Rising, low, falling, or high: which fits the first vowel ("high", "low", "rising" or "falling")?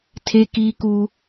high